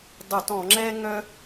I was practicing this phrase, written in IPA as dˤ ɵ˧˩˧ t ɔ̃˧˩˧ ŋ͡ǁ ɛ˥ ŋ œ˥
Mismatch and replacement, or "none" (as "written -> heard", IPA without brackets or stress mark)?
none